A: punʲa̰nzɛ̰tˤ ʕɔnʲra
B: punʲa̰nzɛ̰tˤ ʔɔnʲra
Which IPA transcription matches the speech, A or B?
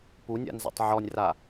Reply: A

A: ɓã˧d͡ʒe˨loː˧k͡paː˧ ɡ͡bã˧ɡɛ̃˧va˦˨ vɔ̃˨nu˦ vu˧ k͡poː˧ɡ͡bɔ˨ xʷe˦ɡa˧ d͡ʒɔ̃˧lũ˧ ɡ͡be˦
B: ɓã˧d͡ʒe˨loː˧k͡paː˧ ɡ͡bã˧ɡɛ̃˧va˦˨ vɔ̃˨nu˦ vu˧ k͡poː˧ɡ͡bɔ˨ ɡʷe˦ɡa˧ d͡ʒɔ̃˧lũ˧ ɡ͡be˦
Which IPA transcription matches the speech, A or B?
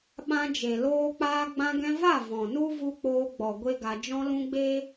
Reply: B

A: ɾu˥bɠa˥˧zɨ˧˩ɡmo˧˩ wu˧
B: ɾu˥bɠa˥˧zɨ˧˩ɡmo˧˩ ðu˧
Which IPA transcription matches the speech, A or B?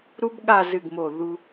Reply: B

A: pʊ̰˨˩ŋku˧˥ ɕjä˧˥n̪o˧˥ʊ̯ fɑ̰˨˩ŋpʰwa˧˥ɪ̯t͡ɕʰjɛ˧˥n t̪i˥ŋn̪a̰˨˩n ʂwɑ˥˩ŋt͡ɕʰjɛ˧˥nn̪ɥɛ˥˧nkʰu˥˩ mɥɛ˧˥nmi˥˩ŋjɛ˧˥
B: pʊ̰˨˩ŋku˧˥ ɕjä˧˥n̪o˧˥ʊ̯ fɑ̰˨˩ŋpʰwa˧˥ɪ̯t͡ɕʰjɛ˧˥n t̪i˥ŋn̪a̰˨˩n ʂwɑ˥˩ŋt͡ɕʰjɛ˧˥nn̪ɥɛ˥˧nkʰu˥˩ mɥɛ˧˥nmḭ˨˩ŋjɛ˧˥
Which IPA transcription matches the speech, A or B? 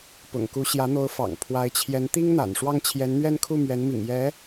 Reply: B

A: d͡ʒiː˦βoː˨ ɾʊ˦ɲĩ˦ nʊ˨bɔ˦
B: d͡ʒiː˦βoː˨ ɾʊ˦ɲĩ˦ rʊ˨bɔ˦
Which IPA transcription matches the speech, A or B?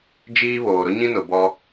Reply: A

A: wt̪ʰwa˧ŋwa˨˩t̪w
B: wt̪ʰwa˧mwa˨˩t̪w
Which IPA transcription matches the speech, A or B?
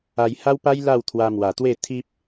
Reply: B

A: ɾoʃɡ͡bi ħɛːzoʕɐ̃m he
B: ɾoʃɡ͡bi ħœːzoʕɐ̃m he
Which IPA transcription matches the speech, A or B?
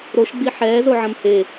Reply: A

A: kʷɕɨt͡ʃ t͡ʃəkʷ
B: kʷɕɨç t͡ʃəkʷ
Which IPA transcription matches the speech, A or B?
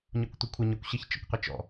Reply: B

